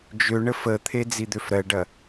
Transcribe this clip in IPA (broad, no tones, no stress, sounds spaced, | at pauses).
d͡ʒ ø ɳ ə f ə t̪ʰ e d͡z i d̪ ø f ɾ ɜ ɖ ɐ